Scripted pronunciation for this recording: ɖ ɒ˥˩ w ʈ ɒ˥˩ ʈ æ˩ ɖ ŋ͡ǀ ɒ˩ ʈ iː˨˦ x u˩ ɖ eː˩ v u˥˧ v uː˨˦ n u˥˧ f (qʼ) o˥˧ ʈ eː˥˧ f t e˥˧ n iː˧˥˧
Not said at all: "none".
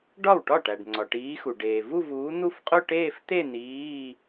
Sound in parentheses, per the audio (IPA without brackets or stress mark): qʼ